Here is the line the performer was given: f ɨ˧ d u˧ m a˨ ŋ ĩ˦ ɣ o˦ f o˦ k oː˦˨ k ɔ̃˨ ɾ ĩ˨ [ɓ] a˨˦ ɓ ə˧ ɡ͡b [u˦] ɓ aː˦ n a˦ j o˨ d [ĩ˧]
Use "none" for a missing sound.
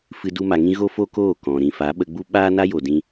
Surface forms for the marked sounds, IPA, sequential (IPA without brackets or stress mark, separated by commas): f, u˦, ĩ˦